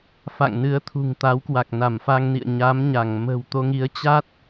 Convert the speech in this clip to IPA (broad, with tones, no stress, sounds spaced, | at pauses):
f a̰˧˨ ŋ n ɨ˨˦ ə̯ t̪ʰ ṳ˨˩ ŋ t̪ a˨˦ w k w a˨˩ k̚ n a˧˩ m f a˧ ŋ n ḭ˧˨ ə̯ ɲ a˨˦ m ɲ a˧˩ ŋ m ə̤˨˩ w t̪ o˧ ŋ i˨˦ ə̯ t͡ɕ a˦˥ t̚